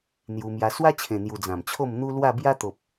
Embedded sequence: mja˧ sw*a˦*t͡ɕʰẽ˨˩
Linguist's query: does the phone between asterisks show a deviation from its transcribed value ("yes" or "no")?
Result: no